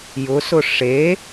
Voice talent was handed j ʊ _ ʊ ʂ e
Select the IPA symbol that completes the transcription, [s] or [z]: s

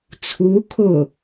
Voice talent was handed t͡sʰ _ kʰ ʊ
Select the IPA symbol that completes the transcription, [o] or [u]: u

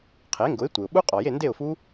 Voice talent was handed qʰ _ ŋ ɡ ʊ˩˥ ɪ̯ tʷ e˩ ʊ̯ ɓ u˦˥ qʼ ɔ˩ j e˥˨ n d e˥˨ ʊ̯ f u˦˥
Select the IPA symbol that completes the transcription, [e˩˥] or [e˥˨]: e˩˥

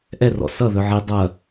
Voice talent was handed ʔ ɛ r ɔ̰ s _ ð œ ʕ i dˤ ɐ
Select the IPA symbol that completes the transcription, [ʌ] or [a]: ʌ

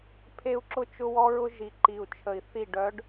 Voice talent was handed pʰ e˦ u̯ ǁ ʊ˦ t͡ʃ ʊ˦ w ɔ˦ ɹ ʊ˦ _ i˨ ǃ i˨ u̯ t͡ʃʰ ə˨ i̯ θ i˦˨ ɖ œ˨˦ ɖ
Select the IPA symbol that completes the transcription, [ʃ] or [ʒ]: ʒ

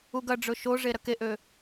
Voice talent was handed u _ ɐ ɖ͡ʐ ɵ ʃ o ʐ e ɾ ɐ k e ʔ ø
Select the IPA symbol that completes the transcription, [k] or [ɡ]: ɡ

